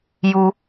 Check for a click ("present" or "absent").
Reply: absent